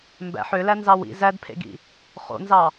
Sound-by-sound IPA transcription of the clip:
m b æ̰ ħ ø l æ n z ɑ w ḭ z æ d pʰ ḛ ɡ ḭ | χ o̰ n z ɑ

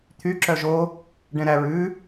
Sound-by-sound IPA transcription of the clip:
t̪ʰ y ǁ œ ʒ o | ɖ ɛ̃ ɾ æ ɹ ʉ

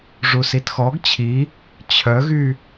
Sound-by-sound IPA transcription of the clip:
ʐ u s i t x ɔ ɡ t͡ɕʰ i | t͡ɕʰ œ ɣ y

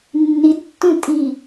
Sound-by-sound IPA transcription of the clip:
nː i d tː ũ tʼ i

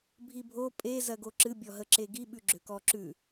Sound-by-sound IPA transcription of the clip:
bʱ i bʱ o pʼ e z ɜ ɡ o ǁ ɨ bʲ ɔ ɦ ə ǁ e ɡ i ɓ ʉ ɡ͡ǁ ø k ɔ ǁ ʉ

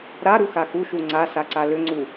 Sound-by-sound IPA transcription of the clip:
ɾ a ɾ u x a x u ʃ u ŋ͡ǀ a s a ǀ a l ʏ ŋ͡ǀ u

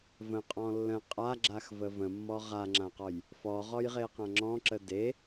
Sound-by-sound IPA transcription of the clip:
v ə̃ qʼ ɔ̃ lː ə̃ qʼ a ɡ͡ǁ a x v ə v ə̃ mː ɔ ʁ a ŋ͡ǁ ã q ɔ j | f ɔ ʁ ɔ j ʁ e q ã ŋ͡ǁ ɔ̃ ǁ ə d e

